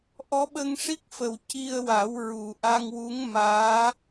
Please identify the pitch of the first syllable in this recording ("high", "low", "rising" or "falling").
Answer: rising